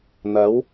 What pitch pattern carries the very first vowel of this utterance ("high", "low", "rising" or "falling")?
rising